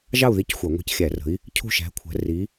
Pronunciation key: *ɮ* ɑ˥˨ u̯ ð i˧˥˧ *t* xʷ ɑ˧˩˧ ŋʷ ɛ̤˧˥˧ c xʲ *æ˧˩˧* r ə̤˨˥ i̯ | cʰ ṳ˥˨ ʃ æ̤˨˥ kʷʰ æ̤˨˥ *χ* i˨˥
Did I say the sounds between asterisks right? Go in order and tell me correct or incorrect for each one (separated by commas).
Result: incorrect, incorrect, correct, incorrect